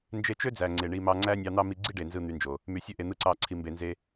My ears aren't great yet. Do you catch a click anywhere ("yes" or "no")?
yes